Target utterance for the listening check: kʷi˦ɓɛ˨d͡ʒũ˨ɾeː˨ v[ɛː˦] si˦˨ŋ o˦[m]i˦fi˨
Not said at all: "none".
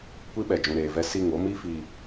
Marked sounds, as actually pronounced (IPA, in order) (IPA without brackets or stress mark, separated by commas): ɛ˦, m